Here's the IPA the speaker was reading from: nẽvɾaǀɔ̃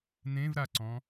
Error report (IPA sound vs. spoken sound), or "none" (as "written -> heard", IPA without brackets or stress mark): none